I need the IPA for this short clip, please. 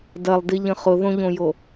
d ɐ lˠ d i ʎ ə̃ χ ʊ ð õ ʎ õ j o

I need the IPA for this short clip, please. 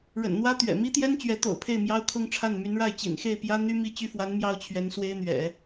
ɻ ə̰˨˩ n n̪ w ä˥ t̪ ɥ ɛ̰˨˩ m i˥ t̪ j ɛ˥ n t͡ɕ ɥ ɛ˧˥ t̪ o̰˨˩ ʊ̯ pʰ e˥˩ ɪ̯ m j ɑ˥ ʊ̯ kʰ ʊ˥ ŋ ʈ͡ʂʰ a˥˩ n m y˧˥ n ɻ a˥˩ ɪ̯ t͡ɕ ḭ˨˩ n x e˥˩ ɪ̯ p j ä˥ n̪ y˥ m i˥˧ t͡ɕ y˥˩ f w a˧˥ n m j ɑ˥ ʊ̯ t͡ɕʰ ɥ ɛ˧˥ n s w e˥ ɪ̯ n̪ ɥ ɛ̰˨˩˦

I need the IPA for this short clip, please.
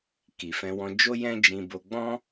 k i˨ f ɛ̃˧ w ɔ̃˧ d͡ʒ o˦ j ɛ̃˦ d͡ʒ ĩ˧ b o˧ ɡ͡b ɔ̃˦

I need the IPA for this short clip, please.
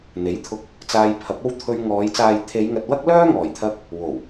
n̪ e˨˥ j t̪ʰ ʊ˧ k̚ | t͡s aː˧ j pʰ ɐ˨˥ p̚ o˥ w t̪ʰ ɵ˧ ɥ ŋ ɔː˨˧ j t͡s aː˨ j t̪ʰ e˨˧ j ŋ ɐ˨ t̚ w ɐ˥ k̚ l œː˥ ŋ ɔː˨˩ j t̪ʰ ɐ˧ k̚ | w o˨˩ w

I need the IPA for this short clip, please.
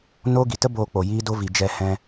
n oː˦ ɡ i˨ t ə˦ b oː˧ k͡p o˨ j i˦ d o˦ v i˨ d͡ʒ ɛ˧ h ɛ̃˧

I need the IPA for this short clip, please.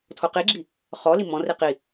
tʰ o q i ɡ͡ǁ i | χ ɔ l i m ɔ̃ r i q i

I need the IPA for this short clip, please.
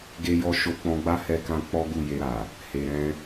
ɡ e˧ j ɔ˧ ʃ o˧ k͡p ɔ̃˧ ɡ͡b a˦ h ɛ˧ k ã˧ k͡p ɔ˦ ɡ u˦˨ j e˧ ɾ a˨ | h e˨ ɾ ɛ̃˧

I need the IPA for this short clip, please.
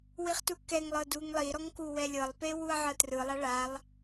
w i χ t u k ɛ ŋ lˠ ɤ d u ŋ lˠ i ɾ ɔ ŋ k u w ɛ lʲ ɤ lˠ p e w u ɐ̯ ʕ ɤ t r ɯ lˠ a ɭ a lˠ

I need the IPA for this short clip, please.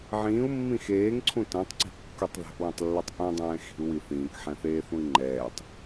ʕ ĩː u̯ mː ĩ x eː ŋ ǀʰ ũ t ɛ̃ tˤ ǀ i̤ kː u tˤ ð ɛ̤ ʔ w ẽ tˤ lː ɛ tˤ ʔ ũ dˤ ɛ̃ː x i̤ u̯ w i θ ĩː k ħ ɛ̃ θ eː θ ũ i̯ ŋ͡ǃ ɛː tˤ

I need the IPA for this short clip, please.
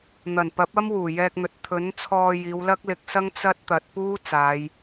n̪ ɐ˨˩ n p ɐ˨˥ p̚ ɐ˥ m w uː˨˩ j ɛː˧ k̚ n̪ ɵ˨ t̚ t̪ʰ ɵ˨˥ n t͡sʰ ɔː˧ j iː˨˧ w l ɐ˥ k̚ l ɪ˨˥ k̚ s ɐ˥ ŋ t͡s ɐ˥ t̚ t̪ ɐ˨˥ t̚ p uː˥ t͡s aː˨˧ j

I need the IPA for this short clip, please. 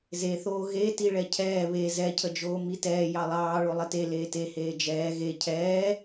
z e θ oː ɣ e t i ɭ ɛ cʰ ɛː β e z ɛ cʰ ə d͡ʒ oː m i t ɛː j ɑ lˠ ɑː ɭ o lˠ ə t e l eː t e h eː d͡ʒ ɛː ɣ e cʰ ɛː

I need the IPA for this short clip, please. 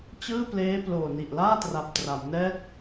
t͡ɕ ɯː˥˩ p l eː˦˥ p l oː˨˩ n i˨˩ ʔ l aː˥˩ t r a˨˩ p̚ t r a˩˦ m n ɛː˦˥ t̚

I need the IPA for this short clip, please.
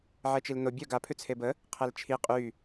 ʕ ɛ t͡ʃ i l n o bʲ œ ɡ a pʰ ʉ t͡sʰ e b ə | qʰ ɛ l t͡ʃʰ i qʼ y

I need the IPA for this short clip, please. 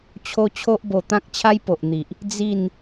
t͡ɕʰ o˦ t͡ɕʰ o˦ ʔ b o˧ t̪ ã˦ k̚ t͡ɕʰ a˦ j p o˨ ʔ n̪ i˨ ʔ | d͡z i˥˧ n

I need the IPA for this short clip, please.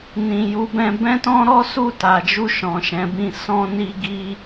n ĩ˨ j u˨˦ b ɛ̃˧ b ɛ̃˦ t ɔ̃˦ ɾ ɔ˦ s u˦˨ t a˨ d͡ʒ u˧ ʃ ɔ̃˨ ʃ ɛ̃˨˦ b ĩ˦˨ s ɔ̃˧ n i˧ ɡ i˦

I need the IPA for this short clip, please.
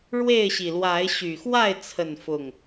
ɻ w e˥˨ ɪ̯ ɕ i˨˩ l w a˨˦ ɪ̯ ɕ y˨˩ x w a˥˨ ɪ̯ t͡sʰ ə˥˨ n f ʊ˥˨ ŋ

